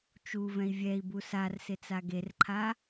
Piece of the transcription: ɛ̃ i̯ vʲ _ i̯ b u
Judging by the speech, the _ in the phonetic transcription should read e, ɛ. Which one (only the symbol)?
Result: ɛ